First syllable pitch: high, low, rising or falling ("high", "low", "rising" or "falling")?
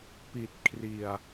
low